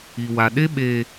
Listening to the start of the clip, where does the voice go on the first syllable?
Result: low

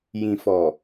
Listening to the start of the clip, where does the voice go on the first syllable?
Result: low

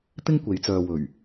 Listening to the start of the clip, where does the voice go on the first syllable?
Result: high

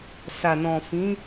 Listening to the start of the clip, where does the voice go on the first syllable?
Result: low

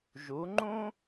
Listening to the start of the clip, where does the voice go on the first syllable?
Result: rising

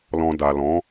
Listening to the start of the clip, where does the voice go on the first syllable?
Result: low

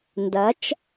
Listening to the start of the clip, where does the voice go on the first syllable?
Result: rising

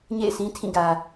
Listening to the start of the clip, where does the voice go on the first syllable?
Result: falling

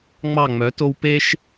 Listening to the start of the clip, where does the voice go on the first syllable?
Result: falling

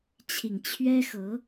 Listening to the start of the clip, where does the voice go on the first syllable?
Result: low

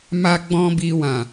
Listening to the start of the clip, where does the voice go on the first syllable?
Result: high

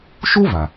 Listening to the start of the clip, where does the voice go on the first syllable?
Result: high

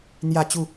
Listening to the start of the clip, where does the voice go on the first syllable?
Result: falling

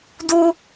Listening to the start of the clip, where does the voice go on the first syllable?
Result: high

